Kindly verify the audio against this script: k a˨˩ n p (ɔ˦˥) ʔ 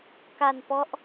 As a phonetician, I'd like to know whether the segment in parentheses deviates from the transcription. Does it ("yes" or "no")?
no